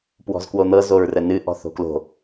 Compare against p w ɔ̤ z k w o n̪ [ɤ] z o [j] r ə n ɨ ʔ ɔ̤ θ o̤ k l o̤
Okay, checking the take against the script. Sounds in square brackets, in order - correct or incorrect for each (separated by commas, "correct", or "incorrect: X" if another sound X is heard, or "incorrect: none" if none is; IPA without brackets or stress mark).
correct, incorrect: ɹ